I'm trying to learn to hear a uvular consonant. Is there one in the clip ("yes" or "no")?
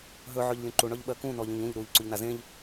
no